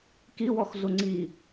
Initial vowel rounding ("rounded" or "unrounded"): unrounded